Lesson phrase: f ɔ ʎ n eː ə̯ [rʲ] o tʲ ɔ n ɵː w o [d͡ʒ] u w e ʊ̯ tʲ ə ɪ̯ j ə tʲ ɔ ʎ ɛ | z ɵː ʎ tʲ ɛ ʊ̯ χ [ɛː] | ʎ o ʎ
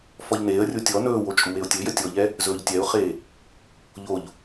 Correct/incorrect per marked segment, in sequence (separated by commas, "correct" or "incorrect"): correct, incorrect, incorrect